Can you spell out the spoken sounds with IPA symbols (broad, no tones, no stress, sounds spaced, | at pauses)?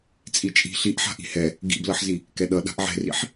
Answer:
t͡sʼ i t͡ʃʼ i̤ ɬ i ʔ ħ a̤ ʔ i̤ h ɛ | ɡ ḭ b l ʌ ħ z i | k ɛ ɗ ʌ ɗ a̤ ʔ ʕ ɛ̤ r ḭ ħ